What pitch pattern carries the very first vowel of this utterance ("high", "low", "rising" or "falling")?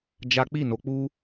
high